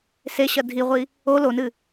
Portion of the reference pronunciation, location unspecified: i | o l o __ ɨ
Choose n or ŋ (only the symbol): n